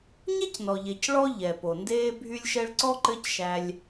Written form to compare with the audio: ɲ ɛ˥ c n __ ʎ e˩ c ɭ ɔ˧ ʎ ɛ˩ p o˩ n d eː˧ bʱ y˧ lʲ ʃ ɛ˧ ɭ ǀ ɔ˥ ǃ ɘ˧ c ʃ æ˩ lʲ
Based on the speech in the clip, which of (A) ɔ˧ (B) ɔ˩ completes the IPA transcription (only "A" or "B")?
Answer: B